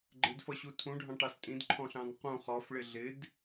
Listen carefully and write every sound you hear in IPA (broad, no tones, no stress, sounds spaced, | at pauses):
ɡ͡ǃ ɪ d f ʌ ɕ u tʰ ũ ɖʱ ɑ̃ ʈ ɑ s tʼ ĩ d ǃʰ ɔ̃ ɬ ɑ̃ n q ũ χ ɔ f ɭ ɪ ɮ ɪ d